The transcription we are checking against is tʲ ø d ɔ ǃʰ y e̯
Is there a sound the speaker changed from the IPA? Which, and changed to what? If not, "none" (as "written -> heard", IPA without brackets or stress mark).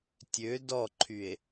none